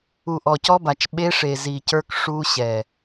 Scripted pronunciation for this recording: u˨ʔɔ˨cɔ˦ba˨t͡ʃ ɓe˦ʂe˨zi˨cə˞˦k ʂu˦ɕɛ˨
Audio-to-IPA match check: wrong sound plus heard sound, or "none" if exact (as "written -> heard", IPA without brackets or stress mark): none